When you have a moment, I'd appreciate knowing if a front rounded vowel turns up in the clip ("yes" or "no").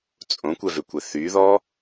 yes